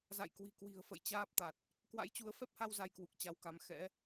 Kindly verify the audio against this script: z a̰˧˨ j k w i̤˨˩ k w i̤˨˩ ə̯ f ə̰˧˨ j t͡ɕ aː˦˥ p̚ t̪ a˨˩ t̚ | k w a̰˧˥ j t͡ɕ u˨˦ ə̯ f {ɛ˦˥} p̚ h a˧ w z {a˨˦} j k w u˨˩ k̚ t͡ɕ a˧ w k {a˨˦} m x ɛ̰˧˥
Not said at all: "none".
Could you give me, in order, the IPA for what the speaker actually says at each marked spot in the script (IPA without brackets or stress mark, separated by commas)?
ɛ˦˥, a˧, a˧